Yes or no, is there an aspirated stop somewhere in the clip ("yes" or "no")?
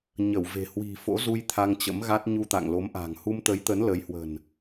yes